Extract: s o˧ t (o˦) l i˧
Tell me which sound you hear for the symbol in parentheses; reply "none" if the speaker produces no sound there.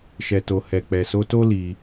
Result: o˦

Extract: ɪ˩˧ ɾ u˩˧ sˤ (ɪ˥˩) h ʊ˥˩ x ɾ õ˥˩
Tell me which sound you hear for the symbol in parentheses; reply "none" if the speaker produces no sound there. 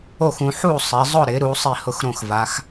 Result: i˥˩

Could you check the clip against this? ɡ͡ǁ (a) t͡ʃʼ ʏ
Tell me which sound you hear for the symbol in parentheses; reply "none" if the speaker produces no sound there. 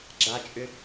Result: a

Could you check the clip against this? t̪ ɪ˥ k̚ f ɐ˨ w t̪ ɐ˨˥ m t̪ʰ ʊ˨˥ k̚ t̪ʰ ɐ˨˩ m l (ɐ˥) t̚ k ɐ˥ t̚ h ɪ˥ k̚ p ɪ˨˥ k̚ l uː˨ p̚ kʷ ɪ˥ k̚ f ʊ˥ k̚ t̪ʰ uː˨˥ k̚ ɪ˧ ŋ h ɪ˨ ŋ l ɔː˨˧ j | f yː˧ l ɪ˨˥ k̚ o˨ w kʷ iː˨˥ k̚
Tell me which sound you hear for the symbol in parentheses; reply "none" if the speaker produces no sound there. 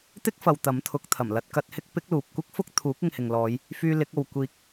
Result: ɐ˥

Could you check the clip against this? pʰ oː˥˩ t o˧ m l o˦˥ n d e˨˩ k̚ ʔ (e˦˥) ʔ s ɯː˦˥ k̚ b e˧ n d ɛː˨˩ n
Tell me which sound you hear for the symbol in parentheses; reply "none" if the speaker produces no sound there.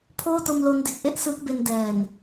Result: e˦˥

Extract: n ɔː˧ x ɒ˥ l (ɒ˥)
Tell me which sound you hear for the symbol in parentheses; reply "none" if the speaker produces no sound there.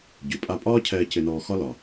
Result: ɒ˩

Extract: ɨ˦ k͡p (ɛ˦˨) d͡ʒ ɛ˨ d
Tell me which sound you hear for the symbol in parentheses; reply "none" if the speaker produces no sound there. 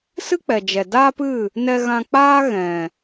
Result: ɛ˨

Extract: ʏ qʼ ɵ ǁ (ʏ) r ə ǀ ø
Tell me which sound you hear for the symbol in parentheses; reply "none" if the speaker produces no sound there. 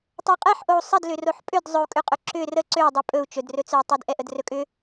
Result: ʏ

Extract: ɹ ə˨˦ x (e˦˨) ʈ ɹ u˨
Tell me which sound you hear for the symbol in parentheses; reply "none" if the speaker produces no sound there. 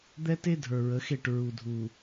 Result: e˦˨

